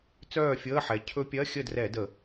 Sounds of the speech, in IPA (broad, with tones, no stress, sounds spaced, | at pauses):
t͡s œː˥˨ fʲ əː˧˥˧ ħ ɛ˩˧ cʰ ɵ˦˥ pʲ ɜ˧˥˧ xʲ ə˥˨ d r ɛ˧˩˧ d ə˧˩˧